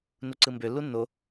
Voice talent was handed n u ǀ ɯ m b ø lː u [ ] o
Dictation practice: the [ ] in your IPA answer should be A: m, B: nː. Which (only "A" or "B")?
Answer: B